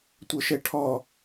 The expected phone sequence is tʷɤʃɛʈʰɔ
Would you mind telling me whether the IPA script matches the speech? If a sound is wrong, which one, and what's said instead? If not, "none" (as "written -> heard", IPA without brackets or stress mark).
none